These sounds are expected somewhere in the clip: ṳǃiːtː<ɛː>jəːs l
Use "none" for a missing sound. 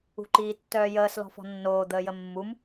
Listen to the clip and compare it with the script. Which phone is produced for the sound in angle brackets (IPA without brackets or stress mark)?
œː